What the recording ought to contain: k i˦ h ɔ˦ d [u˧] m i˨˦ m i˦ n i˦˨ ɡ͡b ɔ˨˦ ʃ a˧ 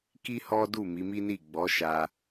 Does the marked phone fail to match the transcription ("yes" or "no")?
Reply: yes